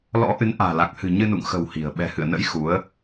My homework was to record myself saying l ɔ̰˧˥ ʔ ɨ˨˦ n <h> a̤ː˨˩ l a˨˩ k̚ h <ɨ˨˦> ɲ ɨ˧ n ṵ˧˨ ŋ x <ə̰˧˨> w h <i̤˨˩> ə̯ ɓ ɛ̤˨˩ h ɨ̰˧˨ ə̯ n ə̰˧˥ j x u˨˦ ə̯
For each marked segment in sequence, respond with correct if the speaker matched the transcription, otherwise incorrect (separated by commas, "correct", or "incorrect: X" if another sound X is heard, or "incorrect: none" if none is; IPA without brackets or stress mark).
incorrect: ʔ, incorrect: ɨ̤˨˩, incorrect: ə̤˨˩, correct